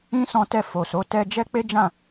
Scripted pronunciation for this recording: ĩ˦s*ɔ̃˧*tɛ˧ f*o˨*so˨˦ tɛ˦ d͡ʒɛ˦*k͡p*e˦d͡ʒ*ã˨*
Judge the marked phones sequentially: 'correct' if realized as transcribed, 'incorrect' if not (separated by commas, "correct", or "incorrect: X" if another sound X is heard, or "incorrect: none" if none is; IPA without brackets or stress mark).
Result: correct, correct, correct, incorrect: ã˦˨